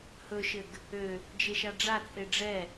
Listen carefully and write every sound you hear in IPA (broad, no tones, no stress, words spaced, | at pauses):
hɵʃɘɡ | ø | d͡ʒeʃaɖ͡ʐat͡sʼe ɖ͡ʐɛ